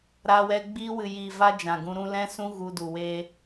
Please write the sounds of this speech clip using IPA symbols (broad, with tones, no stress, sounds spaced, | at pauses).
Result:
ɾ aː˧ w ɛ˧ ɡ͡b iː˧ w ɨ˨ j iː˨ v a˧ d͡ʒ ã˨ ɡ ũ˧ ɾ ũ˧ l ɛ̃˦ s ũ˦ ɣ u˧ d u˨ w e˦